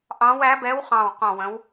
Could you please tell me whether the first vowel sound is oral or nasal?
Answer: nasal